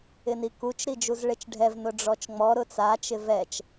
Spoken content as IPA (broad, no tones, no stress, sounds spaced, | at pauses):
ɪ n i k u t͡ʃ ɾ i d͡ʒ u z ɭ e t͡ʃ ɖʱ ɛ v n ʊ ɖ͡ʐ ɔ t͡ʃ ŋ͡m ɔ ɾ ʊ t͡s a t͡ʃ ɪ v ɛ t͡ʃ